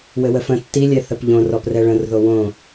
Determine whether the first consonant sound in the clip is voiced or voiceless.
voiced